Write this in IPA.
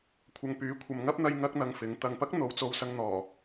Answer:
kʷʰ ɐ˨ ŋ p yː˨˥ kʷʰ ɐ˨ m ŋ ɐ˥ p̚ n̪ ɐ˧ j ŋ ɐ˥ k̚ n̪ ɐ˧ ŋ f ɪ˨˥ ŋ t̪ ɐ˨ ŋ p ɐ˥ k̚ n̪ o˨˧ w t͡s o˧ w s ɐ˧ ŋ n̪ ɔː˨˩

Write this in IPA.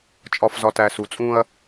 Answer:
t͡ʃʼ ɒ˨ f z ɒ˨ t æ˨ s u˨ t͡sʼ ũ˦ ɐ̯

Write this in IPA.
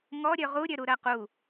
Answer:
ŋ ɔ ɾʲ ø ʁ u ɾʲ ø ɾ u ɾ ɜ q u

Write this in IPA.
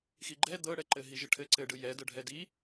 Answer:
x i ɡ͡ǃ ɛ d̪ ɤ ɽ ɛ ǃ ɘ ɦ i ʒ ɘ ʈʰ ɘ ǀ ɘ ɖ ɯ j ɛ d ɤ ɖʱ ɛ d i

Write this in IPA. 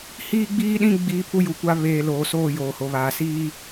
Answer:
h iː˦ ɡ͡b iː˦ ɗ ĩ˦ ɡ͡b iː˦ pʰ u˦ j u˨˦ kʷ a˦ β eː˨ l oː˨ s oː˦˨ j oː˨ h o˨ β aː˨ s iː˦

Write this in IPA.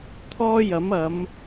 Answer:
t̪ʰ ɔː˥ j ɐ˨˥ m ɐ˨˧ m

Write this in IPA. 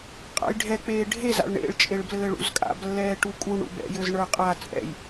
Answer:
qʼ a̰ j ɖʱ ɛ k͡p eː ɖʱ e z a̰ ɭ ɳ ḛ ɭ t͡ʃʼ e ɭ b l ɘː ɭ ṵ z kʼ a̰ b lː ɛː ʈ u kʼ u ɳ ṵ b ɛ̰ j ɘ z ɳ ə˞ qʼ a t͡sʼ ɛ̰ j

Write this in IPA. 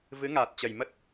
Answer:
v ɨ˨˦ ŋ aː˨˩ t̚ t͡ɕ ə˨˩ j m ə˦˥ t̚

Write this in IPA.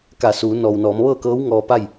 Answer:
k a˧˩ s uː˩˧ n ɔː˩ w n ɔː˩˧ m ʋ ɤː˥˨ k ɤː˧˥ w ŋ ɔː˧ p a˥˨ j

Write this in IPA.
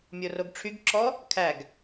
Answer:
mʲ o r o ɡ ʈ͡ʂʰ y ɡ ǁ ɔ | kʰ æ ɡ

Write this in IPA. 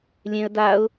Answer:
lʲ ẽ ə̯ d a ʊ̯

